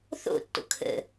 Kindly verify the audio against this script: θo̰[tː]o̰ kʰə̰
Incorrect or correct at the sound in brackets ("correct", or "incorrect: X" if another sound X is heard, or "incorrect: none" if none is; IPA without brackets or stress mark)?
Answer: correct